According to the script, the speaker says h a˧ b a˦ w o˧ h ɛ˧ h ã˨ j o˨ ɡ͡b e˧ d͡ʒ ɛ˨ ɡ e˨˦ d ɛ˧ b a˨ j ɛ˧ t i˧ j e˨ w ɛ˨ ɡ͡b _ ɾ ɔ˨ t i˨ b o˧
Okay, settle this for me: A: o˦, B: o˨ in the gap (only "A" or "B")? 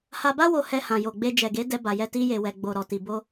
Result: B